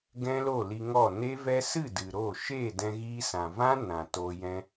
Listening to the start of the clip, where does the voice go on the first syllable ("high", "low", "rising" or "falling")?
high